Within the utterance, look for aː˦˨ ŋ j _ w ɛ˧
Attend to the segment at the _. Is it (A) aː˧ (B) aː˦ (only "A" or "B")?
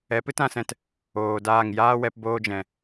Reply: B